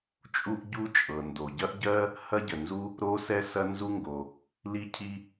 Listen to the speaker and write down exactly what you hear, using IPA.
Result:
t͡ʃʼ u˥ ʔ ɟ u˥ t͡ʃʼ ɤ˩ n d o˩ ɟ ɐ˥ ʔ ɟ ɜ˥ | h ɐ˥ ɟ ə˩ n z u˥ | ɾ o˥ s ɛ˥ s ɐ˥ n z u˥ ŋ ɡ o˩ | l i˥ cʰ i˥

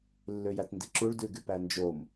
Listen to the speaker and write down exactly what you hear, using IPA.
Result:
lː ø j æ t n d i ǁ u ɭ d ʉ ɡ y p æ n d͡ʒ o m

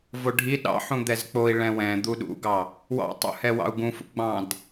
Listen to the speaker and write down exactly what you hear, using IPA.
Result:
v o ɖʱ i ɗ ɑ̰ ħ ũ d̪ ɛ z k͡p o i̯ ɭ ɛ̃ w ɛ̃ d̪ u ɗ ṵ ɡ ɑ | w ɑ̰ tˤ ṵ h ɛ w ɑ̰ u̯ ɡ ũ f ṵ ɡ͡b ɑ̃ d

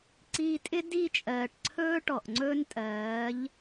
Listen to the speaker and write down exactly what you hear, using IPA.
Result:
ǀ iː˧ tʼ ɪ˦ d i˦˨ t͡ʃʼ ɜː˨ ʈ ǀʰ ɵː˦ ʈ ɔ˨ ʔ ŋ͡ǀ ɵː˦ n tʼ ɜː˨˦ ʎ

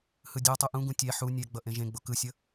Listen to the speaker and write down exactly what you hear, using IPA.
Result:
h ɯ dʲ a tˤ u ʔ ũ ɡ ũ tʲ ɛ ħ u nʲ ɛ ɡ͡b ʌ ʔ ẽ ʒ ẽ ɡ͡b o k ɯ sʲ ʌ

